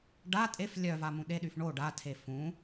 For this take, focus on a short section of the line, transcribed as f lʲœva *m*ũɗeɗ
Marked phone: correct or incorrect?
correct